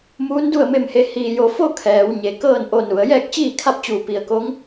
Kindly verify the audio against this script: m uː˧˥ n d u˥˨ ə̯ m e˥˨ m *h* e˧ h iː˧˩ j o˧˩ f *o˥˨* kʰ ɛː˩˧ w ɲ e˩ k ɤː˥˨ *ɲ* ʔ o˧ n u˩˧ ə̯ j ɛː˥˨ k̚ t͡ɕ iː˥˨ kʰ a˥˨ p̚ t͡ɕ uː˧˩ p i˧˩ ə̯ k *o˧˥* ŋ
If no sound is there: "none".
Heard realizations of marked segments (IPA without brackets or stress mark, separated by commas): h, o˥˨, n, o˧˥